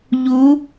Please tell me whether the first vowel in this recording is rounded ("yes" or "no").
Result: yes